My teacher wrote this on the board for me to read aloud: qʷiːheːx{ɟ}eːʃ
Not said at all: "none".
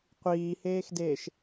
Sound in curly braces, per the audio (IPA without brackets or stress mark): d